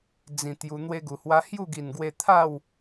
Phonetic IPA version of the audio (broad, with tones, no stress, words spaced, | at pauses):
d͡zĩ˨˩ t̪ju˧ n̪we˧ɡu˨˩hwa˧ hju˥˧ɡi˨˩nɡwe˧ t̪ʰa˥˧w